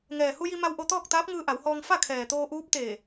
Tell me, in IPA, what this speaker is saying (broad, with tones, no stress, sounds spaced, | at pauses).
ŋ ɛː˩ h u˧ j i˧ m a˧ w ʔ o˧ t̪ ɔː˥˨ k̚ t̪ aː˧˥ p̚ ŋ ɯː˧ ʔ a˩˧ w h ɔː˧ ŋ f a˥˨ kʰ ɛː˩ t̪ oː˧ ʔ uː˧˥ p̚ t̪ eː˧˩